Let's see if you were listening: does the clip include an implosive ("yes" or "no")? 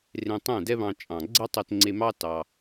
no